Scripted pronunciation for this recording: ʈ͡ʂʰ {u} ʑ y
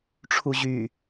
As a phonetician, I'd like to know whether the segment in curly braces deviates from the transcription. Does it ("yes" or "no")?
no